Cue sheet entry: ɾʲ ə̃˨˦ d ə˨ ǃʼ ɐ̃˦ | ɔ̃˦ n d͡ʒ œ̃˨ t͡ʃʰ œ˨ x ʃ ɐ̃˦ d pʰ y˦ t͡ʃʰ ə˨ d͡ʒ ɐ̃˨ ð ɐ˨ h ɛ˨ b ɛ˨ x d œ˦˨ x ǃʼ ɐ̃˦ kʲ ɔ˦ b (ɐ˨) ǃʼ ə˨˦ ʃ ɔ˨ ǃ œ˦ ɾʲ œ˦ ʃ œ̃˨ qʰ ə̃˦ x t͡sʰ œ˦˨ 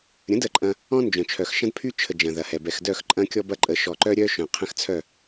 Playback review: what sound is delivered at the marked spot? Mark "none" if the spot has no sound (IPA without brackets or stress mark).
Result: ɐ˦